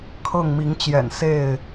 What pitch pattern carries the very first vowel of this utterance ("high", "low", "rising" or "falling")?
falling